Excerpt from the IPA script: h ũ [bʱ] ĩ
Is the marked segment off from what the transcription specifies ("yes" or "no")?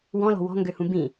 yes